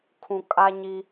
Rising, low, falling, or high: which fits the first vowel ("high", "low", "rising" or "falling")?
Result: low